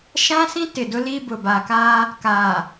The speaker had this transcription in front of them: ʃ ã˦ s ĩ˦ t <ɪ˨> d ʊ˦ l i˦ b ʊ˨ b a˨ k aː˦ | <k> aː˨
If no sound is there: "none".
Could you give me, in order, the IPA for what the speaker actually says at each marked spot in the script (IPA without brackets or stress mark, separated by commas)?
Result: ɪ˨, k